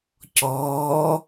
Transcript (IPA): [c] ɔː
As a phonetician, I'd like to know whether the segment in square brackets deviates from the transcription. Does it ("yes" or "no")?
no